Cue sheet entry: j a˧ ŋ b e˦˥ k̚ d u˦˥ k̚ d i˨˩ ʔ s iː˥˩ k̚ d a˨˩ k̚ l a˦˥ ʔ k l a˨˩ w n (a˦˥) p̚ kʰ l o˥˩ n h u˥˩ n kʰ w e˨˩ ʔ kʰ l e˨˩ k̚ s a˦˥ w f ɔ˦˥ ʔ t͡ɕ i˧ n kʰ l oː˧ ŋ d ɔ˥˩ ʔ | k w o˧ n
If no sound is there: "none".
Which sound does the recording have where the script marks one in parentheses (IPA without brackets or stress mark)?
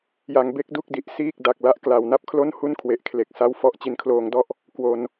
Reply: a˥˩